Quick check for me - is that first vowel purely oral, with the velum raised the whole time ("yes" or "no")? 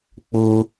yes